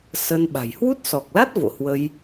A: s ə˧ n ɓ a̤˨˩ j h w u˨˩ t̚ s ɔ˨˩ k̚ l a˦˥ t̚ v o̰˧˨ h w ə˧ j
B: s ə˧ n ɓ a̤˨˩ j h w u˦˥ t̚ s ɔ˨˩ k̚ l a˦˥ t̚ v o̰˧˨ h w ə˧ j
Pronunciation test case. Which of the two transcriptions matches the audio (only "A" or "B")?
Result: B